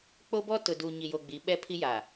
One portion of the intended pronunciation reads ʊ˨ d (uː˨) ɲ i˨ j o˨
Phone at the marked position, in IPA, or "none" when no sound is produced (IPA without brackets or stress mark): uː˨